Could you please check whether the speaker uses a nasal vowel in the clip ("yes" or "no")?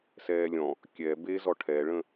yes